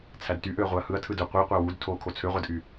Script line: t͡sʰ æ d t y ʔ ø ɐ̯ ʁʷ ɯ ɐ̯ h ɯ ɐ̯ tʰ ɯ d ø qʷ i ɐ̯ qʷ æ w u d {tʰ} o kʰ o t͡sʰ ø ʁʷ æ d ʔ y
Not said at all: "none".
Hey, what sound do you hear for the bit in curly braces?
tʰ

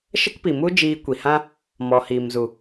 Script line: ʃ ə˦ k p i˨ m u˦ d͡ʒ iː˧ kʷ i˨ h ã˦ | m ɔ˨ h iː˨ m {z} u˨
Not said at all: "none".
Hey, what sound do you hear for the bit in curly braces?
z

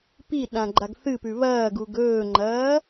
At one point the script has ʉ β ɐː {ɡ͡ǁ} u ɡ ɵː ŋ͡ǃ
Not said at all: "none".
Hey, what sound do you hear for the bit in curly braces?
ɡ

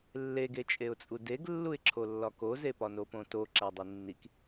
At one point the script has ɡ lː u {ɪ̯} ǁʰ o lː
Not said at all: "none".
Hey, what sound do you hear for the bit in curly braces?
ɪ̯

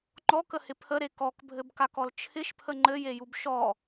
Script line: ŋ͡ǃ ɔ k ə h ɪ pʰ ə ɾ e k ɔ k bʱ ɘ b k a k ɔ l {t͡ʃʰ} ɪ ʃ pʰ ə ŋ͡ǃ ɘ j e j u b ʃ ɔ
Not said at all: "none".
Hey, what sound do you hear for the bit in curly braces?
t͡ʃʰ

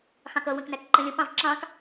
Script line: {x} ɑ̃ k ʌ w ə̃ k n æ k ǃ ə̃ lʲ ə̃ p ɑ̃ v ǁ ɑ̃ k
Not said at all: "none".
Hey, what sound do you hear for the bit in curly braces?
x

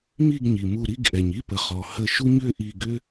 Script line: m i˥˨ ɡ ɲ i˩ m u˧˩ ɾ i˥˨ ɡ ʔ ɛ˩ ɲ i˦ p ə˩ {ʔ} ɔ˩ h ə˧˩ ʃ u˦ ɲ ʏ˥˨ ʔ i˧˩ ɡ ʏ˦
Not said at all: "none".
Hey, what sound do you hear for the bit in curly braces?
χ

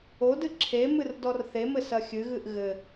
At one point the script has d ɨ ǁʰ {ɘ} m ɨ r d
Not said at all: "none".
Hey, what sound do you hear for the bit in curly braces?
e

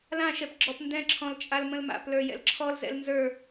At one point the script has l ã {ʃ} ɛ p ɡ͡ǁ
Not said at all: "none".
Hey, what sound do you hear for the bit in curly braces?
ʃ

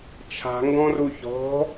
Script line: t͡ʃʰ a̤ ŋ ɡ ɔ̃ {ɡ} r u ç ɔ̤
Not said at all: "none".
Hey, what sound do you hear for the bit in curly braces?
none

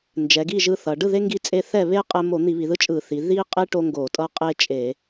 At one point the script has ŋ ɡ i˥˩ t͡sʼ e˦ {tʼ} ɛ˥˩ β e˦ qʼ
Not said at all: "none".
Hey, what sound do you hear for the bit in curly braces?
θ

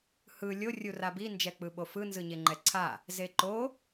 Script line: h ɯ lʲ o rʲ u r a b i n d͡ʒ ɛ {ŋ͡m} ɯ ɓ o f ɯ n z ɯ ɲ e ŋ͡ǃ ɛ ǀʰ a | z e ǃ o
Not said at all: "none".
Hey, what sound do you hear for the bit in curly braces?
k͡p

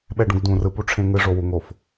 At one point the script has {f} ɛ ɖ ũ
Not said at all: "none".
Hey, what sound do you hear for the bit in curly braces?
ɓ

